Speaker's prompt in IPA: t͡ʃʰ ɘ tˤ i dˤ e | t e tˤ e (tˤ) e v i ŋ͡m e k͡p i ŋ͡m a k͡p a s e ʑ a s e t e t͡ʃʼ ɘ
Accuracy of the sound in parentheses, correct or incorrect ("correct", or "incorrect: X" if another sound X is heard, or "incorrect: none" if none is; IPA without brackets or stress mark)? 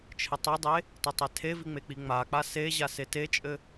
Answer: incorrect: tʰ